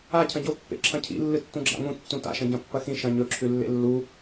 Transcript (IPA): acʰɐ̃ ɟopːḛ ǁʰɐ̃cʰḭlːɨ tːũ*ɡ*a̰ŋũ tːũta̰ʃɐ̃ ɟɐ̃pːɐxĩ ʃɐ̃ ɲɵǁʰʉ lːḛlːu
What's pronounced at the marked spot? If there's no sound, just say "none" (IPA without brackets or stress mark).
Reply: ɡ͡ǁ